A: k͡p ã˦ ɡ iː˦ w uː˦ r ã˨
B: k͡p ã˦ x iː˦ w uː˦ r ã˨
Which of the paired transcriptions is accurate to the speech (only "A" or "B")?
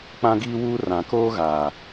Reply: A